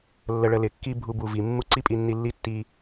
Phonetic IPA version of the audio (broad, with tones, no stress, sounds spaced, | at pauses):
lː ə˧ ɭ ə˧ l ɪ˨˦ kː i˦ bʱ u˧ b u˨ v i˨ mː u˦ ǀ i˦ pʼ i˧ nː i˧ lː i˦ tː i˧